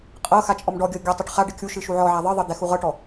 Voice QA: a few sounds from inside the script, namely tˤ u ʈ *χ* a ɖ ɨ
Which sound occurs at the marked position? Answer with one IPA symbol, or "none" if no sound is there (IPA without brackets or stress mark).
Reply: χ